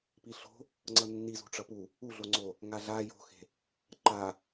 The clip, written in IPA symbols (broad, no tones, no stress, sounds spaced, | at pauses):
p i ɬ o̤ | ŋ͡ǀ ʌ nː i z ṳ ʈ͡ʂ ʌ p u | u ɮ o ŋ͡ǀ o | ŋ a ɮ a j o̤ x e̤ | ǃ a